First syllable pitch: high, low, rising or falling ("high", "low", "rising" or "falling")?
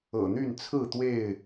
low